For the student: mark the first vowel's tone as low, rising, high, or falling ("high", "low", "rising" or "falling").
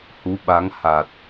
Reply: rising